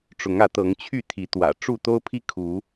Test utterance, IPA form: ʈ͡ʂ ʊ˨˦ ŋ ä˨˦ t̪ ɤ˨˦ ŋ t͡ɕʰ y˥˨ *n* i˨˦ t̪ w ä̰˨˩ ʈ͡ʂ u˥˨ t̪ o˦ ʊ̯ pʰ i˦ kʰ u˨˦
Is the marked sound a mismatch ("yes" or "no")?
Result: yes